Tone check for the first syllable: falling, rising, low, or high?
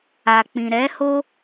low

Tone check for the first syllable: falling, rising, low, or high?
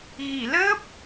low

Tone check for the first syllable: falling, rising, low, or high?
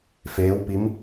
rising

